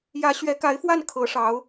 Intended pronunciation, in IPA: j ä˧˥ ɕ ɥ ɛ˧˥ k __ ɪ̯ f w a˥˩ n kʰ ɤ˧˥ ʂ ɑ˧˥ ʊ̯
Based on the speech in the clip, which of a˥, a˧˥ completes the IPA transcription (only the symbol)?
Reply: a˧˥